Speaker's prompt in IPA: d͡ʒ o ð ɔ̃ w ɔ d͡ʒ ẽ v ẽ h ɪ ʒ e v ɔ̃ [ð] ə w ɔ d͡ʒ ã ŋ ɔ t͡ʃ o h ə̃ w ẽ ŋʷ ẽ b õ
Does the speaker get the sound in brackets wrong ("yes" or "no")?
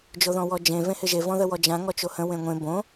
no